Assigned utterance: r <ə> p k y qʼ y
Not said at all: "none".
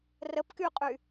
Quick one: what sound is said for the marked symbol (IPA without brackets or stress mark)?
ə